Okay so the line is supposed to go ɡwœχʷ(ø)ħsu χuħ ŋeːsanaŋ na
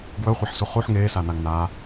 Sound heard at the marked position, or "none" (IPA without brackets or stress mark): e